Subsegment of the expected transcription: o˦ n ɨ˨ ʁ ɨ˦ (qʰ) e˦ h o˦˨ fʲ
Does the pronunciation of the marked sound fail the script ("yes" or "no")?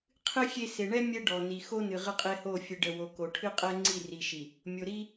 yes